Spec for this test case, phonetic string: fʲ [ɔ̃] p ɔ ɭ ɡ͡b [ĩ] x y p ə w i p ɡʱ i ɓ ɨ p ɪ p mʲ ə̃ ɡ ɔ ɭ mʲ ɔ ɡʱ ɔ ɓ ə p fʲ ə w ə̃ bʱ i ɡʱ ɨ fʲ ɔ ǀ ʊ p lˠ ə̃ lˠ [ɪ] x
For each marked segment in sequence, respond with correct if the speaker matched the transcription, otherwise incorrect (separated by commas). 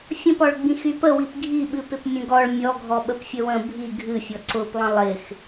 incorrect, correct, correct